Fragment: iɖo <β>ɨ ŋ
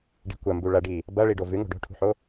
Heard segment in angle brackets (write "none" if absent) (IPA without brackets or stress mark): v